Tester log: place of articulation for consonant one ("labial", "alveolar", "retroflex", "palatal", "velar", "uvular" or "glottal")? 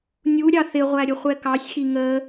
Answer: alveolar